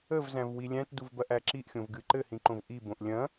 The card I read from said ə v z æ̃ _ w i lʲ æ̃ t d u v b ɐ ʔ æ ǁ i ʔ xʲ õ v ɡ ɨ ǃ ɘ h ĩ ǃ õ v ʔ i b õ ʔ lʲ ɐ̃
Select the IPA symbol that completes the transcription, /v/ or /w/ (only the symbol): v